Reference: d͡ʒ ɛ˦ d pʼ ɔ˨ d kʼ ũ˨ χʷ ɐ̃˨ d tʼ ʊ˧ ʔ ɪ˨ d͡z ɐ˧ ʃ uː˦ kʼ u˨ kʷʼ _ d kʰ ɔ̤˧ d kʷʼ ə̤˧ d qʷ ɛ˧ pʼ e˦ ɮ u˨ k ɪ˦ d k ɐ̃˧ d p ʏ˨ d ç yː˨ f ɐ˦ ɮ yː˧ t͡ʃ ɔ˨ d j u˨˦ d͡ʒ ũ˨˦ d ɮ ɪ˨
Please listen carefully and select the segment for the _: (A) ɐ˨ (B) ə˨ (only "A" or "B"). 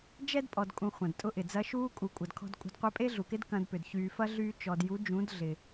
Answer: A